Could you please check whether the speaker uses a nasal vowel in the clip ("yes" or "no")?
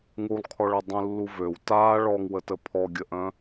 yes